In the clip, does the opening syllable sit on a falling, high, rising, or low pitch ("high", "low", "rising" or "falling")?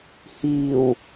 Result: low